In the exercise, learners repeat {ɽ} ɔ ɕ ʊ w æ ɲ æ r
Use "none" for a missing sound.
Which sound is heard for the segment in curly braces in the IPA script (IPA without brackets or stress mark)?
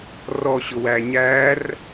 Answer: r